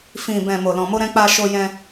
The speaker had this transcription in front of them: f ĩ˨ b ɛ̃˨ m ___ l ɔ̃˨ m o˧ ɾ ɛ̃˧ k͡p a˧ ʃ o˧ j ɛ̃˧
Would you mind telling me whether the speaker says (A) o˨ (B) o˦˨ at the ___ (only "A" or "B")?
A